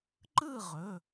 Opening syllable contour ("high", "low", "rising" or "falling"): falling